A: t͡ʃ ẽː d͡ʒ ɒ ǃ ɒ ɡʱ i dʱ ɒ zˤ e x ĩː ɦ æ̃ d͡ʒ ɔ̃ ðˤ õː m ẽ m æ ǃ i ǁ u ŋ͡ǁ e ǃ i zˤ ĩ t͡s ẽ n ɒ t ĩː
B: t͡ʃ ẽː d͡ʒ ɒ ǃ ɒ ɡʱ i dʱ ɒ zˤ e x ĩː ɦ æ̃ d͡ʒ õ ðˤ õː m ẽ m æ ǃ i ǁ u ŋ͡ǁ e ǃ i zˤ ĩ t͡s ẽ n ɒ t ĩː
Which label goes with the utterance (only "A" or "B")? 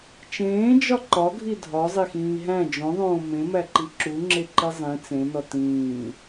B